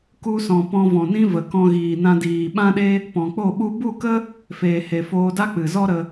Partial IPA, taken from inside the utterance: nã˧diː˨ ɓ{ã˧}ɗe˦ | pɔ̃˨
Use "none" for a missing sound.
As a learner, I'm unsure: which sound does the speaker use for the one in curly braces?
ã˦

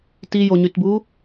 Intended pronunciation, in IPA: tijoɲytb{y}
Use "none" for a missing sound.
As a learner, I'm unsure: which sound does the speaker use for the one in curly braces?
u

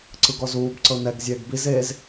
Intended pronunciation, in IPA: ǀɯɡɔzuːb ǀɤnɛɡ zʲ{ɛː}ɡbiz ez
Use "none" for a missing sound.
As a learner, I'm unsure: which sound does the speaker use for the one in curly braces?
ɛː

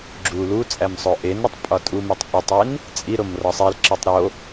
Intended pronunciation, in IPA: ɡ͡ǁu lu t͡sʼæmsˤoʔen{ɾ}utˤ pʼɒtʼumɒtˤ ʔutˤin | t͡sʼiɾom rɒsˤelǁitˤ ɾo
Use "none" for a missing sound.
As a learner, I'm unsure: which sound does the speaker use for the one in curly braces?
ɾ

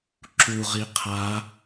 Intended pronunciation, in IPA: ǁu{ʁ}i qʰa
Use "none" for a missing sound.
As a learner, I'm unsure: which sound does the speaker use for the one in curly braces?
ʁ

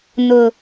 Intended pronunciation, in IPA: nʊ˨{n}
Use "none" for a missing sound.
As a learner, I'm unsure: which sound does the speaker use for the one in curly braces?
none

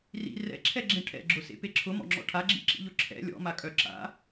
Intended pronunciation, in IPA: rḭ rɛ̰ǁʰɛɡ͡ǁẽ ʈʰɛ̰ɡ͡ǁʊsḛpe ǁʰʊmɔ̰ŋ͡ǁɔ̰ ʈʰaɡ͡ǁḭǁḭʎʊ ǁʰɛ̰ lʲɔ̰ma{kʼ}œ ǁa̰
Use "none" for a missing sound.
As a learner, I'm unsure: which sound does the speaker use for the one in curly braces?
kʼ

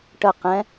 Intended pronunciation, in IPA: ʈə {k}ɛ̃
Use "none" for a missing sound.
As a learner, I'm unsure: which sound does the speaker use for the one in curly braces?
q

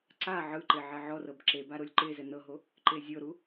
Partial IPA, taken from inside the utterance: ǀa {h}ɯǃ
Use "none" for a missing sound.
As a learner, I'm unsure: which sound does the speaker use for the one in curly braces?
ʕ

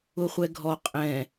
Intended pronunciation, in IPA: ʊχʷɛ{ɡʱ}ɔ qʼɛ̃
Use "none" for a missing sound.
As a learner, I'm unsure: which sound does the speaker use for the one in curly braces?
ɡʱ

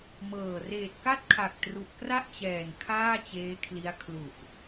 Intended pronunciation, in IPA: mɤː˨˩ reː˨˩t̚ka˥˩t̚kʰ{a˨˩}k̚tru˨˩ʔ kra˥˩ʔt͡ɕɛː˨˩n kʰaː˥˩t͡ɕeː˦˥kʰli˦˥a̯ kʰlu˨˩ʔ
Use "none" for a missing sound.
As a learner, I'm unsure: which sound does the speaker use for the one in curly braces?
a˨˩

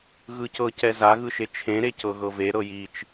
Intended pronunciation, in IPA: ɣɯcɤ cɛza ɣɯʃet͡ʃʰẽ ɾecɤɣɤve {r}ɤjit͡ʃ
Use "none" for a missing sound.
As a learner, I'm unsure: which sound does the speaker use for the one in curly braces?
ɾ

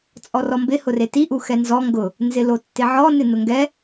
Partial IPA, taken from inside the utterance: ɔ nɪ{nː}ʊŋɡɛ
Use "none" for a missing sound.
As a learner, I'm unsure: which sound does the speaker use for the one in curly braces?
n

